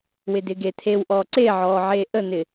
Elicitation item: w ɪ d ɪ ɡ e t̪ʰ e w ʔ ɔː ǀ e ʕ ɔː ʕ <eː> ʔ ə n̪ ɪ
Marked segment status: correct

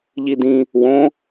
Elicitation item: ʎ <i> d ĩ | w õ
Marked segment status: correct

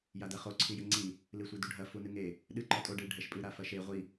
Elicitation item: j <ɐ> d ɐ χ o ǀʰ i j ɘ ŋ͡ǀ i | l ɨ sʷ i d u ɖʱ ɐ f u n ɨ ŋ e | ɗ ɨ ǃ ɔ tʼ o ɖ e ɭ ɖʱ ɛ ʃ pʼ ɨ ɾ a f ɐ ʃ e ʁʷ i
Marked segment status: incorrect: a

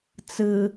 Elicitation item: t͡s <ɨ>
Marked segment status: correct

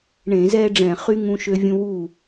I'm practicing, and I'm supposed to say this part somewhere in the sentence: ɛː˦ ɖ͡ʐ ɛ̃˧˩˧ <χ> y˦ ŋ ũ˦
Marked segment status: correct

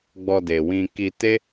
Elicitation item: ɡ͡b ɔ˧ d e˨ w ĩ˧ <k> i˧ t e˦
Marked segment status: correct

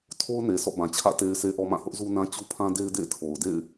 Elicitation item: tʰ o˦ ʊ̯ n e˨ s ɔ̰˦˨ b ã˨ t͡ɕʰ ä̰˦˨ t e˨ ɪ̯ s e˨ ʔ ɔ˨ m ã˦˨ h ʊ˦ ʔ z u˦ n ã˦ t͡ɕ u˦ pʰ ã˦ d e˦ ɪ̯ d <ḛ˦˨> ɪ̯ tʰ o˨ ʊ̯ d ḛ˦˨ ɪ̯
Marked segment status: correct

